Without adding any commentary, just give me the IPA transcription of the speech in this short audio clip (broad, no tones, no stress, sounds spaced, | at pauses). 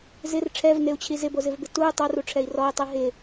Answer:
z ɪ r ʈ͡ʂʰ ɛ v n e u̯ t͡ɕʰ i z ɪ b o z ɪ v b ɪ t u y̯ tˤ o r u ʈ͡ʂʰ ɛ i̯ r ɔ i̯ tˤ i ɦ ɪ